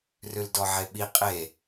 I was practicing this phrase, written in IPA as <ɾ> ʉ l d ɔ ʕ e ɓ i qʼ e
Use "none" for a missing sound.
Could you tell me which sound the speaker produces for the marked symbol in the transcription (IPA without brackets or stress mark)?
r